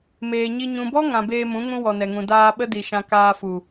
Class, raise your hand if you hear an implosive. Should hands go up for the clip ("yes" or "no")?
yes